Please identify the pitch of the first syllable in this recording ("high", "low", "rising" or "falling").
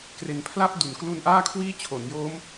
low